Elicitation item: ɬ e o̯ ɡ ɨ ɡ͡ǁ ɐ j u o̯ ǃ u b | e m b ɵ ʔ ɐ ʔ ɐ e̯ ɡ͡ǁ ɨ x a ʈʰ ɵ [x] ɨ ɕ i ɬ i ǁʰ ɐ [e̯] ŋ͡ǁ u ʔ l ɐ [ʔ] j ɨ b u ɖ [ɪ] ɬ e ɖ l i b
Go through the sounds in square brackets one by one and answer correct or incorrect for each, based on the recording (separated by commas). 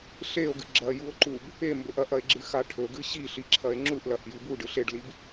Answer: incorrect, correct, correct, incorrect